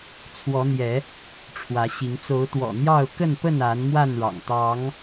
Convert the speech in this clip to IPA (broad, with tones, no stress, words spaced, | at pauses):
t͡sʰwɔ˨˦n̪jɛ˨˦ | ʈ͡ʂʰwä˨˦ɕi˨˦ŋ t͡so˨˦ʊ̯t̪wɔ̰˨˩n̪jɑ˥˨ʊ̯ kə˥˨npə˥˨na˨˦n mwa˥˨nɻɑ̰˨˩ŋ t̪ɑ˨˦ŋ